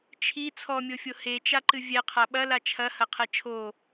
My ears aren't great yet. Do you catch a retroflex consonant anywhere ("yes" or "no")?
no